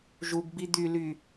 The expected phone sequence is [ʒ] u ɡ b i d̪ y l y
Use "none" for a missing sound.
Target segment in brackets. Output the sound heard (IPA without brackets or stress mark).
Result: ʒ